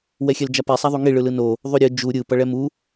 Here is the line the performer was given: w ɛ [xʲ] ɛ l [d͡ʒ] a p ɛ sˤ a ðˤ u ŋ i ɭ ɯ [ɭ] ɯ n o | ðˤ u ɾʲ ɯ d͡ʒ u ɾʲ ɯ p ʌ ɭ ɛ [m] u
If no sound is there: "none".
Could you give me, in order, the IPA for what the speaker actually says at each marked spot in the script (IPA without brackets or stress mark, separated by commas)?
xʲ, d͡ʒ, l, m